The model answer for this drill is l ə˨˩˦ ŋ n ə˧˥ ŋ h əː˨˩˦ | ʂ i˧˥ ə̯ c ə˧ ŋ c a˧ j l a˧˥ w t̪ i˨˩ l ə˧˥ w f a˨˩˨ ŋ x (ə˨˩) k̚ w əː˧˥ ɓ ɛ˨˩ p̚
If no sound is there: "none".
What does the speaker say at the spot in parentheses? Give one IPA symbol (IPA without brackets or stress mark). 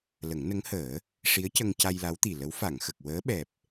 ə˨˩